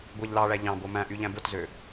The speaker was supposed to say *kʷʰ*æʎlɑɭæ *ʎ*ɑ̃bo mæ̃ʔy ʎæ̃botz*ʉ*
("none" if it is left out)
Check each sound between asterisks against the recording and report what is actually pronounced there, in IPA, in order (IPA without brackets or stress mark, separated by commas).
ɡʷ, ʎ, ø